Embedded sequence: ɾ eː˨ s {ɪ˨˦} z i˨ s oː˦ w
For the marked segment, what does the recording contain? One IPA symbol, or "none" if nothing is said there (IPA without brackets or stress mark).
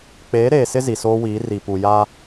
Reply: ɪ˦